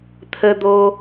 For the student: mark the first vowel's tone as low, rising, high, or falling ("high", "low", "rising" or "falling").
low